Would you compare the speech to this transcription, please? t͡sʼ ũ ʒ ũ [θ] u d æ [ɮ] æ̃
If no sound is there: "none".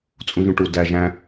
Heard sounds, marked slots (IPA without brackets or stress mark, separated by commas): ʈ, ʒ